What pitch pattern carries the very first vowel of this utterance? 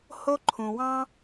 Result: high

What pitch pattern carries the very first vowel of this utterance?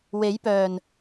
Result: rising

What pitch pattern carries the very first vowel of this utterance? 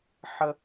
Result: high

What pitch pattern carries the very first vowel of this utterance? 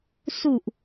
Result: low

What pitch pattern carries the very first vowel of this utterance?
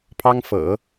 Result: high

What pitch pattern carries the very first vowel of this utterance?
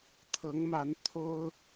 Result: rising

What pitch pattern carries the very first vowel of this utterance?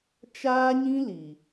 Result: high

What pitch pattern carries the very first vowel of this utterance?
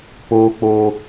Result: high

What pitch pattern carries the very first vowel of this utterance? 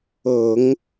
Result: low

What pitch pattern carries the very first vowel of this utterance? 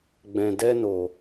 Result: low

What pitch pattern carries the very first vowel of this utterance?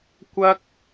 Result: high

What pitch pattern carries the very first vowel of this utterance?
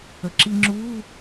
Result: low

